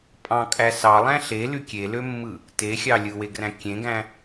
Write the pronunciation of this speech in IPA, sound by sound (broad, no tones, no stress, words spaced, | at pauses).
pʼɑ̃kʼæ sɑlˠæ̃ ɬely kʲelømːɯ | texʲɑ lʲɯweɡræ̃ kʲẽɡæ̃